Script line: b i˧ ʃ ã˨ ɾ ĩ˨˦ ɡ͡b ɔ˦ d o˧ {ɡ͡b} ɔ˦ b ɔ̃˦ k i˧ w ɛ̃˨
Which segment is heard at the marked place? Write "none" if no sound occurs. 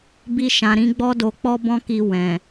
k͡p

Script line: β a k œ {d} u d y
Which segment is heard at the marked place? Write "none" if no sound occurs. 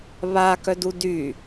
d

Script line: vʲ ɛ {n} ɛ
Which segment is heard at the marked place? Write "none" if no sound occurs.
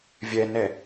n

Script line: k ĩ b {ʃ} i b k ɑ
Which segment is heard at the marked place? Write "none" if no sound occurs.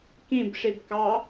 ʂ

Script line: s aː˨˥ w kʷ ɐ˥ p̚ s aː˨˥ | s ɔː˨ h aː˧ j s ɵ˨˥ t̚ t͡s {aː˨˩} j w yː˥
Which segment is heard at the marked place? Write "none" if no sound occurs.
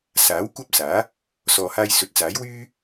aː˨˥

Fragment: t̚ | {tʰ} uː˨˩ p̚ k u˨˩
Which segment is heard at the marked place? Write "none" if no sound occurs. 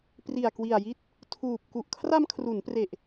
tʰ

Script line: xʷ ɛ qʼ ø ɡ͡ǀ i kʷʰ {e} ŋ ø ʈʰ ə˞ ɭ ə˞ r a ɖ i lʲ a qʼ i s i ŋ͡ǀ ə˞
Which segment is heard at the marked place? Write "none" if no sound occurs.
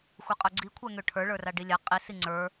ɛ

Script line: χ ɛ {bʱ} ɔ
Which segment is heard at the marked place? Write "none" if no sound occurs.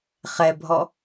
bʱ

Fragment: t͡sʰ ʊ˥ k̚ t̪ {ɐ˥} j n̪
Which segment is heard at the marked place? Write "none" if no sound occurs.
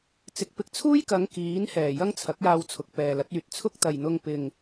ɐ˨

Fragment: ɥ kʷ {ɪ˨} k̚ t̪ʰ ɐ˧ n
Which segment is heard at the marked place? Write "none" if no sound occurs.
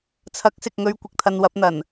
ɪ˨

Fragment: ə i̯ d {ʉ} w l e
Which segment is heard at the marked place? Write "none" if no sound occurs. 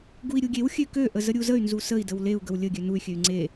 ə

